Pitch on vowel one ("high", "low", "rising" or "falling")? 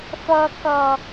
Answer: low